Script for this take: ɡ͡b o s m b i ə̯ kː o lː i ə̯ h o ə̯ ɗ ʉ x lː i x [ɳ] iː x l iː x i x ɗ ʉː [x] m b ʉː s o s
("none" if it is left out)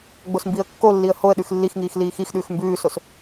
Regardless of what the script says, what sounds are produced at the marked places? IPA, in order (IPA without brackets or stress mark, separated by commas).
ŋ, x